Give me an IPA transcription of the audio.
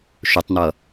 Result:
ʃ ʊ tˤ n̪ ʌ

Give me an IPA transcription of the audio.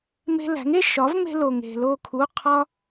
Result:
m e̤˧ l æ̤˩˥ ŋ e˥˩ ʃ ɒ˩˥ v m e̤˧ l o˩ ŋ e̤˩ l o˧˩ kʰ u˩˧˩ qʰ ɒ˧

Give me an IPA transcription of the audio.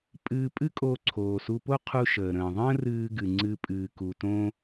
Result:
pʼ ɨː˧ pʼ ɨ˥ kʼ o˧ ǀʰ oː˩ s u˧ p o˥ qʰ u˧ ʃ əː˩ ɾ ə̃ː˩ ðˤ ə̃ː˥ r ɨː˧ ɡ ɨ˩ ŋ͡ǀ ɨ˧ pʼ ɨː˩ k u˩ t õ˥

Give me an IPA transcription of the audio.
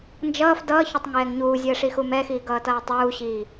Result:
n d͡ʒ ʌː f d ʌː ç ʊ tˤ ŋ ɛː ŋ ɲ uː zʲ əː ʂ i x u m ɛ x iː ɡ ʌː t ʌː tˤ uː ɕ iː

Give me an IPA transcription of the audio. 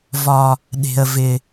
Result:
v ɒ˦ | ɗ e̤˦ ə̯ v ɪ˦

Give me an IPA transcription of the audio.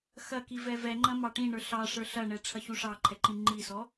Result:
x ɐ k i v ɛ v ɛ ŋ͡ǃ ɐ̃ m ɑ ʈ ĩ ɳ ə˞ ɬ ɑ ʂ ə˞ ɬ ɐ ɳ ɛ ʈ͡ʂʰ ɐ ç u ʂ ɑ ǃʰ ɛ ǃ ĩ ŋ͡ǃ i s ɔ

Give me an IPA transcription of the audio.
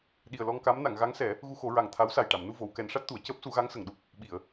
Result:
ɗ i˨˩ ə̯ l ɔ˧ ŋ k a˧˥ m n a˨˩˨ ŋ ɣ a˧˥ ŋ s ɛ˨˩˦ | ɣ u˧ x o˨˩˦ ɹ a˨˩ ŋ t̪ʰ a˧˥ w s a˨˩ j ʈ a˨˩˨ m n u˧ v o˨˩˨ w k ɛ˨˩˦ n ʂ a˦˥ t̚ t̪ u˨˩˨ ə̯ c əː˦˥ p̚ s u˨˩˦ ɣ a˧˥ ŋ s ə˨˩ ŋ ɗ u˦˥ p̚ | ɓ i˨˩˨ ə̯

